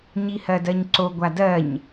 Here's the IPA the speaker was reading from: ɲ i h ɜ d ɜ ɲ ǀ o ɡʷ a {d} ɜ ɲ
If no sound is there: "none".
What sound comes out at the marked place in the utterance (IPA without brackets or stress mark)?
d